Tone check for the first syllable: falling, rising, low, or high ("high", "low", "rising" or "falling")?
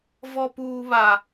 high